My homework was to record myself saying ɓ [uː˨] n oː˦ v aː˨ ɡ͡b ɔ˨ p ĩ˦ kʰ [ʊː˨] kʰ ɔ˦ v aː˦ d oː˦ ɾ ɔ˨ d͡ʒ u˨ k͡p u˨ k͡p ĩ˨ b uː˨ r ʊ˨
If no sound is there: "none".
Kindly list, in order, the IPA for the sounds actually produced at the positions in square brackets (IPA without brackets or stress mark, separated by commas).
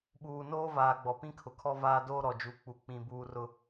uː˨, ʊ˨